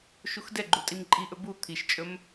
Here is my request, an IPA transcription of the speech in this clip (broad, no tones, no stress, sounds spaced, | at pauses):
ʃ u x d ɛ ɡ͡ǃ u tʼ i m ǃʼ i ʔ ɵ b u t̪ʰ i ʃ t͡ʃʼ ɵ m